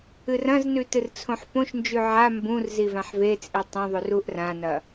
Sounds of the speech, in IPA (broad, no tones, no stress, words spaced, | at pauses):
ɨrɐ̃znʉ tɨrt͡sʰõħpõʃnd͡ʒʉ ʕa mbũr zivãħvet͡sʼi tˤũðˤʉr uʔrãnɐ